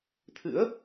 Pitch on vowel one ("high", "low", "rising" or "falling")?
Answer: rising